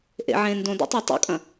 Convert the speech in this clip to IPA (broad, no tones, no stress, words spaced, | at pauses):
ʔḛ ʕẽːndõdḛtˤo tˤṵkʼɐ̃